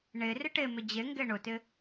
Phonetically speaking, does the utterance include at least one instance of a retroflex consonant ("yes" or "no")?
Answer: yes